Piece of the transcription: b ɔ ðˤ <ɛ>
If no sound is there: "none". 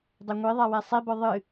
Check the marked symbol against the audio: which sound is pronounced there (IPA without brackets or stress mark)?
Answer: ɨ